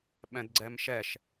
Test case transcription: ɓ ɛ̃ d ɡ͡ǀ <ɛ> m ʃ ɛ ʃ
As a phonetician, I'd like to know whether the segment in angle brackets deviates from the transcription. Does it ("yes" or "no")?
no